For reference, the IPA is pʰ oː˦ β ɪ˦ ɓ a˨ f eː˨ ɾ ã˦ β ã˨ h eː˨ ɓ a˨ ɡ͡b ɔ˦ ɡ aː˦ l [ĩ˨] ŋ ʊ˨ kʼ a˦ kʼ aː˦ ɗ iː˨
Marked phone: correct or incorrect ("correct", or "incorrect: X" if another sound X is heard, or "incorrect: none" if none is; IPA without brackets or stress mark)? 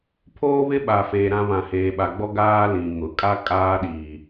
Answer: correct